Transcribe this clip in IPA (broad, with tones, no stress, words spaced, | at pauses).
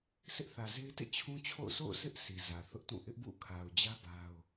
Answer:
sʰɪ˦ʔθä˨ze˦ɪ̯tḛ˦˨ t͡ɕʰũ˦t͡ɕʰo̰˦˨ʊ̯ sʰo̰˦˨ʊ̯sɪ˦ʔ si˨zä˨θʊ˦ʔtũ˦˨ ʔɪ˦ʔbṵ˦˨ kʰa˨ʊ̯d͡ʑä˦ ba˦ʊ̯